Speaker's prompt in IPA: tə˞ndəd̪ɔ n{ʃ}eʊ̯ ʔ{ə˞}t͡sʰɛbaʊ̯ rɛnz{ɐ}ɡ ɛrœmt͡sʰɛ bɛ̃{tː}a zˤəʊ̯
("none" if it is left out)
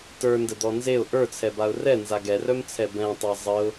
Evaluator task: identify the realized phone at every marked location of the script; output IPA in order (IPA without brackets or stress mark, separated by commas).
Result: z, ə˞, a, tˤ